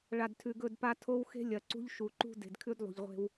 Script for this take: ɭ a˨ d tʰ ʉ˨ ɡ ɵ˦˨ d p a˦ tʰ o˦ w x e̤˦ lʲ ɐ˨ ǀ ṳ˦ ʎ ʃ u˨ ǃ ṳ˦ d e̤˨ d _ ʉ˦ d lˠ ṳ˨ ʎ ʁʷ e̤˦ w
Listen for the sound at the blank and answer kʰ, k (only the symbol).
kʰ